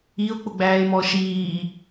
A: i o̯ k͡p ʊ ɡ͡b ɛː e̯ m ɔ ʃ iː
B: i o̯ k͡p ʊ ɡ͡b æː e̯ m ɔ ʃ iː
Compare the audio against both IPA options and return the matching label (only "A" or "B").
B